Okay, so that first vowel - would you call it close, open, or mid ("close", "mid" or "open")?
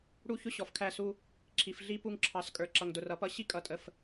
close